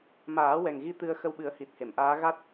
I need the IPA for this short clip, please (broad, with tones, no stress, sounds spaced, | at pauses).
m aː˨˩˦ w ɛ˨˩ ŋ ɣ i˧˥ t̪ ɨ˧ ə̯ x ə˧ w ɓ ɨ˨˩˦ ə̯ h i˨˩ t̚ h e˨˩˨ m ʔ aː˧˥ ɣ a˦˥ t̚